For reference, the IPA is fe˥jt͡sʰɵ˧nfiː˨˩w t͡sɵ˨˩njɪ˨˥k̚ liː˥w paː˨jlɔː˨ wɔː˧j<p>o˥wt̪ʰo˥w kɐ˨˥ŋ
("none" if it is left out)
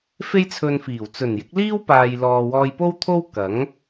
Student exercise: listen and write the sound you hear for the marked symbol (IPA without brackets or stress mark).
p